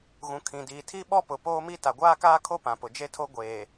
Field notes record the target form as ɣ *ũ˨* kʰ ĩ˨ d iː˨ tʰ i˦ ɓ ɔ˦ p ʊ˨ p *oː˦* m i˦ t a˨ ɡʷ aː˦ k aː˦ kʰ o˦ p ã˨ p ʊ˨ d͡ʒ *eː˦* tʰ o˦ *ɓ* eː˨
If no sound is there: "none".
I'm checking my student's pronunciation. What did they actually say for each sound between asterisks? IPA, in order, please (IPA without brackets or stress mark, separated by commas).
ũ˨, oː˦, e˦, ɡʷ